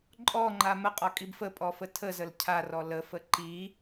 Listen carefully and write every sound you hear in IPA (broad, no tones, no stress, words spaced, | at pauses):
ǃʼɔŋ͡ǃa məqʼɔkʼib fəpʼɔfə tʰəzəl cʰarɔ ləfə ǃi